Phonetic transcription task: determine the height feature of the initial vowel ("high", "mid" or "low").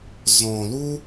mid